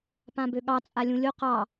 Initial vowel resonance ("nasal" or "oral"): nasal